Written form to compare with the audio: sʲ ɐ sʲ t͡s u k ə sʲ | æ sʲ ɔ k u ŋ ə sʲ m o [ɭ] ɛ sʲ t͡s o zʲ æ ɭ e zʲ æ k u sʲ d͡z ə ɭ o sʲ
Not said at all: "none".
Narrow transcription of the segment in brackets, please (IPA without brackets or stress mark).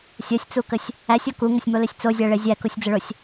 l